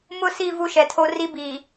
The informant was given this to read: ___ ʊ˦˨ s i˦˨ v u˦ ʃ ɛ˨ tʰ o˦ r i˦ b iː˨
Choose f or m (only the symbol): m